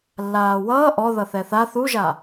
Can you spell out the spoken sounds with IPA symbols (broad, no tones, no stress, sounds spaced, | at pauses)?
lː aː w ʌː ʔ ɔ ð ʌ θ ɛ θ a θ u ʒ a